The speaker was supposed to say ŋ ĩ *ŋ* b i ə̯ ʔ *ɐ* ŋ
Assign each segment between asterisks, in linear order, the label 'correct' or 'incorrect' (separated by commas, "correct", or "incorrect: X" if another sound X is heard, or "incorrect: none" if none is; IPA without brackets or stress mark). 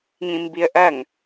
incorrect: m, correct